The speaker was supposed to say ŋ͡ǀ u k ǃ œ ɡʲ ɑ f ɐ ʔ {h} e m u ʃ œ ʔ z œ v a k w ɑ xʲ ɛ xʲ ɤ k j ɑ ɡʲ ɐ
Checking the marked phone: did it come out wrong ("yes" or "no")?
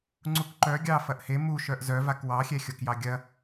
no